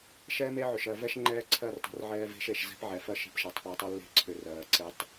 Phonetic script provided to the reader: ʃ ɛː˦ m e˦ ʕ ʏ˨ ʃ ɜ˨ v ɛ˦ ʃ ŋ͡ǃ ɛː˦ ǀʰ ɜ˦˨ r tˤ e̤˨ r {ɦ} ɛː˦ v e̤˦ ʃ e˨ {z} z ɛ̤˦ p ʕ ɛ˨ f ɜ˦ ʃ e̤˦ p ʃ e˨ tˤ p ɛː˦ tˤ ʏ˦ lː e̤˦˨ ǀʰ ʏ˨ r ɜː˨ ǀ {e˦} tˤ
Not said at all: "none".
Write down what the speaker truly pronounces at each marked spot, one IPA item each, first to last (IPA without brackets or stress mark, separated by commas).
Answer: ʕ, ʃ, e˦